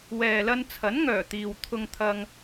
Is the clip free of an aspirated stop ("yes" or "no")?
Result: no